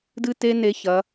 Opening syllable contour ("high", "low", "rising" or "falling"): high